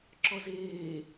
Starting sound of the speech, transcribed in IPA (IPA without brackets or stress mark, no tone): ǁ